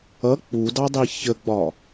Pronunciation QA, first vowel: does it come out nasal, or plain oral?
oral